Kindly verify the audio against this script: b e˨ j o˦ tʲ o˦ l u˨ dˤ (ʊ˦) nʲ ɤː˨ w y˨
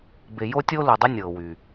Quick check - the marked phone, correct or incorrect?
correct